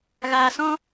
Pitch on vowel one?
low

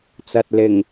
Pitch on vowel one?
low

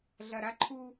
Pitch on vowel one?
low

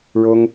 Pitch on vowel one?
high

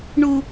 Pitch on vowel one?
low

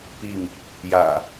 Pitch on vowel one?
falling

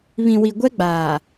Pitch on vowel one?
low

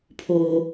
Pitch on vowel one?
high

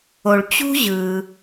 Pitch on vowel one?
low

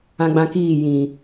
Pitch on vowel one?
high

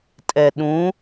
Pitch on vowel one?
low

